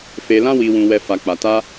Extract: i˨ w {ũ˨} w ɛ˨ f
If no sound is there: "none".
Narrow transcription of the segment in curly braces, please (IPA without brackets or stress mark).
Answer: ũ˨